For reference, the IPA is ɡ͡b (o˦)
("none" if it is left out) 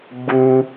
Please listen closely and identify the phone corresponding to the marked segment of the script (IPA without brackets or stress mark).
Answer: u˦